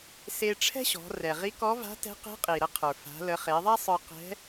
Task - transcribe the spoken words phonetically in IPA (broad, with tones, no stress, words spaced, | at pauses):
se˧ʈ͡ʂʰɛ̤˥ ɕɔ̤˩˧rɛ˩ʁi˧˥kɔ˧˥ va̤˧˥tɛ̤˧˥qe̤˧˥ qʼi˩ ɾə˧qʰə˞˩ fa̤˩˧lə˩˧ χe˩˧ðˤa˥ sˤə˞˧qɛ̤˧˥